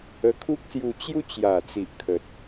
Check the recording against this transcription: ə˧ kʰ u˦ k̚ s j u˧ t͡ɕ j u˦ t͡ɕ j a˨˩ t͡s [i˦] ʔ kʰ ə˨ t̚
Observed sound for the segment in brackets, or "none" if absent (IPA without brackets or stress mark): i˨